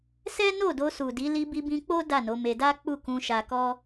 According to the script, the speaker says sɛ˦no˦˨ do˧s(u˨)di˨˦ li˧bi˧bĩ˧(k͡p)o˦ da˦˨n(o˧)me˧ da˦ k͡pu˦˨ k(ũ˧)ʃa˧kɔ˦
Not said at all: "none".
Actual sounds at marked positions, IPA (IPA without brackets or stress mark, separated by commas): u˨, k͡p, o˨˦, ũ˧